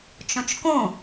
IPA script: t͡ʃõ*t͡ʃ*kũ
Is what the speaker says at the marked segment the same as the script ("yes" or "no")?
yes